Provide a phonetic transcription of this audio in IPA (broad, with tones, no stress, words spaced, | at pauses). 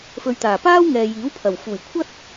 fɵ˨ɥt̪aː˨˩paː˥wŋɛː˨ jiː˨˥wpʰɐ˨˩w fuː˨˩jkʷʰɐ˥t̚